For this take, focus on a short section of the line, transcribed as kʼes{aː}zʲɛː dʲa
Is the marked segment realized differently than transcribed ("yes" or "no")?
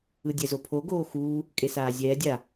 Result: no